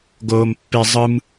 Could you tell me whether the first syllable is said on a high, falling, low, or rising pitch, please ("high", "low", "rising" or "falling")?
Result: high